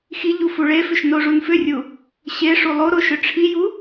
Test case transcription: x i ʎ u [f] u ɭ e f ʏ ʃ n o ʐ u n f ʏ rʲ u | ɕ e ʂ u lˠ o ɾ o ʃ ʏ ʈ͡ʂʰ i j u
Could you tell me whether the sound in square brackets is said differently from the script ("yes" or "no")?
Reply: no